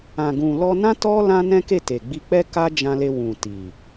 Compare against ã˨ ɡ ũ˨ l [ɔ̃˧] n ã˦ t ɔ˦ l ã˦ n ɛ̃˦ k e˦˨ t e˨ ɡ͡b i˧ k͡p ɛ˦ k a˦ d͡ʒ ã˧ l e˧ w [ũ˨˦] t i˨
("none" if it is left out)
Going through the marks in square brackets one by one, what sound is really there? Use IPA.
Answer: ɔ˧, ũ˨

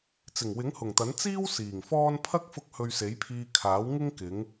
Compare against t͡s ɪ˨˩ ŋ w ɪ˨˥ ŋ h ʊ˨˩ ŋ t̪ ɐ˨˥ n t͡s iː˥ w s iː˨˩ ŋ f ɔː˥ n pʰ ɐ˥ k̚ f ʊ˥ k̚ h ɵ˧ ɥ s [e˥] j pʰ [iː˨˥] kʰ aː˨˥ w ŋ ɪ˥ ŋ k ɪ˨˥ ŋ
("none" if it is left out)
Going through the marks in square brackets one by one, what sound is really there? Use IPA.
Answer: e˨˥, iː˧

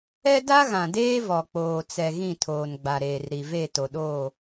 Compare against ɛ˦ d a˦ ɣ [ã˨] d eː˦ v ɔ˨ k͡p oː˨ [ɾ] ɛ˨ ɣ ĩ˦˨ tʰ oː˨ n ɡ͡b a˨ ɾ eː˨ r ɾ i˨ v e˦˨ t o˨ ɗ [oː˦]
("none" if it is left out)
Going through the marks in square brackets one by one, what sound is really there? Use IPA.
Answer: ã˨, t͡s, oː˦˨

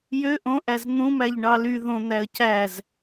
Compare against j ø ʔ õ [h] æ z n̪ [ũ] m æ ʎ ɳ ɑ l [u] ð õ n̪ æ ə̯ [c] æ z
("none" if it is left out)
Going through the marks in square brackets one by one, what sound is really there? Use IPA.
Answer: ʔ, ũ, y, c

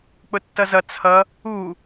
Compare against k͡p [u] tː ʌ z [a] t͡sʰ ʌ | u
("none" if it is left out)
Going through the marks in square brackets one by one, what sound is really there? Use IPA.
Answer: ʊ, ʌ

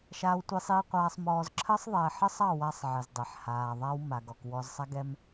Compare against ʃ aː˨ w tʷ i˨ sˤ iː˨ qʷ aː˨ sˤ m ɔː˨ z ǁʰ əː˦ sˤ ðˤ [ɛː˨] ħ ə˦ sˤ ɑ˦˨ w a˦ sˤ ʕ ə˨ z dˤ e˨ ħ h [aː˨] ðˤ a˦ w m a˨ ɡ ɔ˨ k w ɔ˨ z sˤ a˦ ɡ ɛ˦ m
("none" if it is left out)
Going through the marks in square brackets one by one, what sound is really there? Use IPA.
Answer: ɛː˨, aː˨

